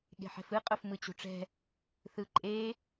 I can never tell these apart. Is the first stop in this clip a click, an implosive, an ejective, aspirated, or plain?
implosive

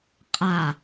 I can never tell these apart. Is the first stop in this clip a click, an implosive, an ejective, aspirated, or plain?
ejective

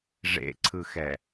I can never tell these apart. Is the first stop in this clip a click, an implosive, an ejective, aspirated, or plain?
click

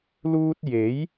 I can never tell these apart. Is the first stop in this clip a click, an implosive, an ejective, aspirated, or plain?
plain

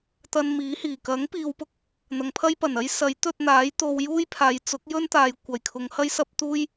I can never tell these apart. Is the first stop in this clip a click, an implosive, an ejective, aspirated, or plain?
plain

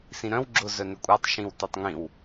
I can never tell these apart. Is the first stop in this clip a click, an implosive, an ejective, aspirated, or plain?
click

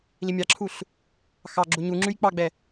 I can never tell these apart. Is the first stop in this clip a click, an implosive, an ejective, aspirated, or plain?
click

